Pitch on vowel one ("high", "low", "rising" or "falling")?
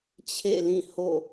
falling